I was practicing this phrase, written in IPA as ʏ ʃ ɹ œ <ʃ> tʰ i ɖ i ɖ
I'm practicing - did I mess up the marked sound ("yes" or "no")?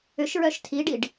no